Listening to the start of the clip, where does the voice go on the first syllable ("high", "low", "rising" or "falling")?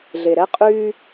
low